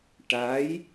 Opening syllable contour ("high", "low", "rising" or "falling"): rising